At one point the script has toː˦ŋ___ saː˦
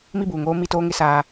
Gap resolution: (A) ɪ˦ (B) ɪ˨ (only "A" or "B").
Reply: A